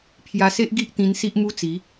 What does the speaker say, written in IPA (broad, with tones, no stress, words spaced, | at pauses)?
pʰja˧se˦ʔ ɡi˦ʔt̪ĩ˧n si˦ʔmu˦t͡si˨˦